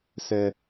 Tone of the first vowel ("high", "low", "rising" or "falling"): low